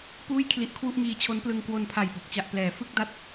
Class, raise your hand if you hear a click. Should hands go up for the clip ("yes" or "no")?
no